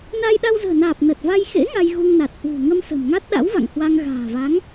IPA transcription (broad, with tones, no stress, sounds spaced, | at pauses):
n a˧ j ɗ a˧ w z ə̤ː˨˩ n aː˨˩ p̚ n ə˨˩ t̚ v a˧ j x ḛ˧˥ ŋ a˧ j ɣ u˧ ŋ n a˨˩ t̚ h w ṳ˨˩ ŋ ə˧ m s ə̤˨˩ m ŋ a˦˥ t̚ ɗ a̰˧˥ w v a̰˧˨ ŋ h w a˧ ŋ ɣ a̤ː˨˩ v a˨˦ ŋ